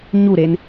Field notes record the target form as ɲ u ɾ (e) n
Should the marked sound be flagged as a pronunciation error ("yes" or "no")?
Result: no